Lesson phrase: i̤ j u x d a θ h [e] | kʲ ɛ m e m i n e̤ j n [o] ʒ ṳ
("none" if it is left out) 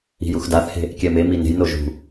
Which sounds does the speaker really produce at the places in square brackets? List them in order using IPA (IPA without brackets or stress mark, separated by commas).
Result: e̤, o